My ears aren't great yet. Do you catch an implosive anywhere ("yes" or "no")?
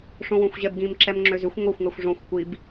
no